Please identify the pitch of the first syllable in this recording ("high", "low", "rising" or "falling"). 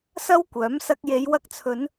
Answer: high